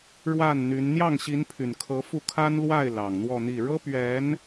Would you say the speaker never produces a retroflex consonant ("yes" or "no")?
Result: no